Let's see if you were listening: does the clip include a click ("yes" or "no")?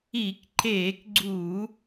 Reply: yes